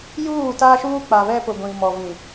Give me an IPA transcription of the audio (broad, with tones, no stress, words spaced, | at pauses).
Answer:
juː˦˨ta˦ʃuː˦ k͡pa˨βɛ˦pʊ˨ ɡʷĩ˨mɔ˨vĩ˨